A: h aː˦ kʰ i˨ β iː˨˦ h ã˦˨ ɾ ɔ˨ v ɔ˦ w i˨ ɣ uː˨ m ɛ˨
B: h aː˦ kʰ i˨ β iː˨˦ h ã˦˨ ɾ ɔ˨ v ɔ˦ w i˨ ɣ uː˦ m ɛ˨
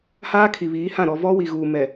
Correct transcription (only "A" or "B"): A